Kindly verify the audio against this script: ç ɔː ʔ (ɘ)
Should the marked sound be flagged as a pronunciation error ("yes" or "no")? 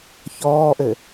no